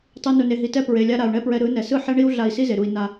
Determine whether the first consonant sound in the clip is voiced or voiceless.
voiceless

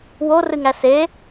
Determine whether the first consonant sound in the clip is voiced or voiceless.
voiced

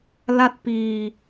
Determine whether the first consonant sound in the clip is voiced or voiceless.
voiced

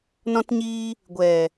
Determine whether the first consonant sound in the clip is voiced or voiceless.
voiced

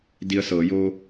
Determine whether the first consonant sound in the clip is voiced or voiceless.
voiced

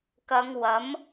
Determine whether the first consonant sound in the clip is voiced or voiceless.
voiceless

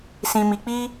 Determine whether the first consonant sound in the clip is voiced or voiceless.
voiceless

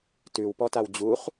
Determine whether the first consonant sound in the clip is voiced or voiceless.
voiceless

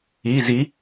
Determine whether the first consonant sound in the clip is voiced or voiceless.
voiced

